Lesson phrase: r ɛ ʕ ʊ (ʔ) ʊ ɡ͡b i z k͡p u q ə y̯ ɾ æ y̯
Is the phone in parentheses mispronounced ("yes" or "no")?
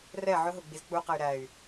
yes